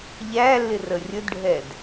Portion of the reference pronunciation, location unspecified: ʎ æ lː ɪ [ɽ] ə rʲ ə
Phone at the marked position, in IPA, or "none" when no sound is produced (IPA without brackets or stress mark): r